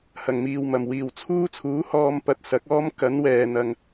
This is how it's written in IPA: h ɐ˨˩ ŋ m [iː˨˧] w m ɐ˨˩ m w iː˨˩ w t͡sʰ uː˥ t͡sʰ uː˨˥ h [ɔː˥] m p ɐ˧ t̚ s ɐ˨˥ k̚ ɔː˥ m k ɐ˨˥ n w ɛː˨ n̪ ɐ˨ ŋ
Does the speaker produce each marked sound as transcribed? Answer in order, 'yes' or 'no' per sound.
no, no

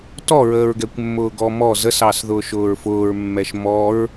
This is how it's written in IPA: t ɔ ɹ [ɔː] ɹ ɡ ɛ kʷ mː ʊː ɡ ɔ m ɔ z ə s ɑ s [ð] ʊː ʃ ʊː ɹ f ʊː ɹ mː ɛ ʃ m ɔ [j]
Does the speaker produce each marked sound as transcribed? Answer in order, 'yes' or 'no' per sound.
no, yes, no

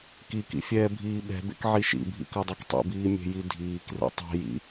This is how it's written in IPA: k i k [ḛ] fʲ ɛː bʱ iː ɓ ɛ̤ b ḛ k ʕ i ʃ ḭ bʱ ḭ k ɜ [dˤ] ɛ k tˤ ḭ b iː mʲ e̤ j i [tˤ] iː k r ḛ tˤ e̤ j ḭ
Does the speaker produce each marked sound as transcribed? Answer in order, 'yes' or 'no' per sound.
no, yes, no

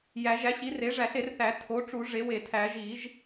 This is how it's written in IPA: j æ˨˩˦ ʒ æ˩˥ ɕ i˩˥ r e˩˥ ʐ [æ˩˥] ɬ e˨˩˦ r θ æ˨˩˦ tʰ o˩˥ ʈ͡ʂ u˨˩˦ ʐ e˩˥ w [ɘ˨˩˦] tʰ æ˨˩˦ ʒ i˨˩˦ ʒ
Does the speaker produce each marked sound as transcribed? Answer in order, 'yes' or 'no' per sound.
no, no

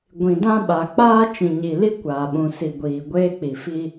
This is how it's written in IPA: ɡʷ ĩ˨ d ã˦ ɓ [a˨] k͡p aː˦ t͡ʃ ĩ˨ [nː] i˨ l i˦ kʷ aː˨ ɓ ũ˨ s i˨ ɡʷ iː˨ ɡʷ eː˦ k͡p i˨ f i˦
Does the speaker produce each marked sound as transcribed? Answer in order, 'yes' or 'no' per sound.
yes, no

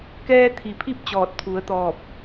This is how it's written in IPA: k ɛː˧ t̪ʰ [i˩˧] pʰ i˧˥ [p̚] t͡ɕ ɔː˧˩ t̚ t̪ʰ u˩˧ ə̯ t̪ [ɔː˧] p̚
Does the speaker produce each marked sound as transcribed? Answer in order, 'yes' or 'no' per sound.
no, yes, no

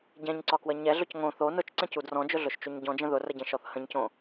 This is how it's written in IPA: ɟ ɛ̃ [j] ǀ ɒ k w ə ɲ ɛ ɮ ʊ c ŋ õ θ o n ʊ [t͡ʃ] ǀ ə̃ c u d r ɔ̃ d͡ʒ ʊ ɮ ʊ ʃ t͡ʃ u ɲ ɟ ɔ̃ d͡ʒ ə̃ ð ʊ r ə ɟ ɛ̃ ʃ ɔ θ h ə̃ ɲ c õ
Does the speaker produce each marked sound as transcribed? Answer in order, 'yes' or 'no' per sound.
no, yes

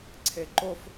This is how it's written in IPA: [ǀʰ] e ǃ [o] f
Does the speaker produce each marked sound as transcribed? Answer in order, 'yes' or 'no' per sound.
yes, yes

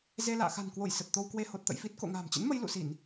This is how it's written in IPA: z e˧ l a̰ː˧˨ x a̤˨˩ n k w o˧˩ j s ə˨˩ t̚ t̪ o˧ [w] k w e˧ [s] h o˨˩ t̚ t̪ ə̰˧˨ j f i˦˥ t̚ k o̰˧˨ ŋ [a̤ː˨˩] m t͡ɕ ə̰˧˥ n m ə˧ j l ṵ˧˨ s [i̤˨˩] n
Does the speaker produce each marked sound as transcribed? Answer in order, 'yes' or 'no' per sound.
yes, no, yes, no

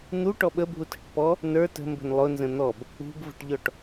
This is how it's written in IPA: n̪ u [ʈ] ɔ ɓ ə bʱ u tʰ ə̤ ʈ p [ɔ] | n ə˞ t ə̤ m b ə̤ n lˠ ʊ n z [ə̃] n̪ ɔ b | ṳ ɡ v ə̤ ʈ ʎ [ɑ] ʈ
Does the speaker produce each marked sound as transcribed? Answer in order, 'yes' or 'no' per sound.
yes, yes, yes, no

